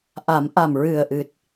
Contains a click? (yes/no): no